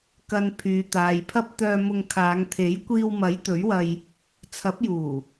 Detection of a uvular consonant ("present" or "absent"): absent